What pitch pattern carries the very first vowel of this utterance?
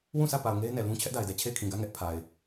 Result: falling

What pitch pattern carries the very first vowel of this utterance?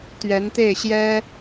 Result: rising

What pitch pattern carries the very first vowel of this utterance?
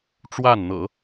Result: falling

